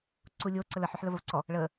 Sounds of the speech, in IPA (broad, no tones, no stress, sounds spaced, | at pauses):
ǀ u lʲ o ǀ ə l ə ħ y ħ l ə v ə v ǀ ɔ | ɭ ə